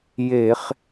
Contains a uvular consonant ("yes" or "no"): yes